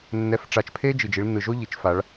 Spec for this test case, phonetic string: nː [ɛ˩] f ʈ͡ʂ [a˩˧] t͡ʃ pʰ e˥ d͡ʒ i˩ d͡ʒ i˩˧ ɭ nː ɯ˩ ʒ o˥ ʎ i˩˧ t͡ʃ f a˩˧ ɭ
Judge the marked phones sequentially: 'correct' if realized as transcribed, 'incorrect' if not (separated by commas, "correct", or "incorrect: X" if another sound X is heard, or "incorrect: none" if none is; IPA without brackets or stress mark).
incorrect: ɛ˧˥, incorrect: a˧